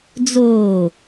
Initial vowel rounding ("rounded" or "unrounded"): rounded